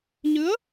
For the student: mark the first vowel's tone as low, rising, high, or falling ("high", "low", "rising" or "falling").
rising